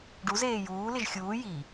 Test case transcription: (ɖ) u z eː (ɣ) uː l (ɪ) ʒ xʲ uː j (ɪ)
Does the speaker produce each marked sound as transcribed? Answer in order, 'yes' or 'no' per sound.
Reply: yes, no, yes, no

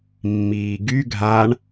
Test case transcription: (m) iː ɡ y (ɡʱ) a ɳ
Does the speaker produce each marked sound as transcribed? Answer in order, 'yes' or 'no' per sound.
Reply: no, yes

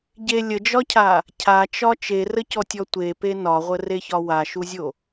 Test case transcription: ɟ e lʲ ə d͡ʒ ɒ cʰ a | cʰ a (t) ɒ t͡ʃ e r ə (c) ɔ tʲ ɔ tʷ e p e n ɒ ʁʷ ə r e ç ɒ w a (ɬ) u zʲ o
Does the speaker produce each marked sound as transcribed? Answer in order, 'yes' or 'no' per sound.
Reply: no, yes, no

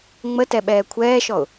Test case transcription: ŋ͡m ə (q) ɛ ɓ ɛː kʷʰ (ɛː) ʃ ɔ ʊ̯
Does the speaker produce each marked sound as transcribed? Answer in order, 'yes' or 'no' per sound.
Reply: no, yes

